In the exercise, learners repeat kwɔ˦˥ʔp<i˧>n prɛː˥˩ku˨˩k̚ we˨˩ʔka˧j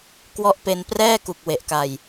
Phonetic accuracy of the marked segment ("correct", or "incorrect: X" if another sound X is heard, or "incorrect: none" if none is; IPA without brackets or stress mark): incorrect: e˧